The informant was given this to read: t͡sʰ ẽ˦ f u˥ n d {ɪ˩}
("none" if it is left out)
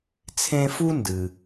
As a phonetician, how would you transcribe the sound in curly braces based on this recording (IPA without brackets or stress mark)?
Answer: ɨ˩